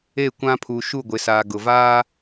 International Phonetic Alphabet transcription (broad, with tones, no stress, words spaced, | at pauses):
e˦˨kʷã˦pʰu˨ ʃu˦˨ɡʷɪ˨saː˨ ɡʊ˨ vaː˦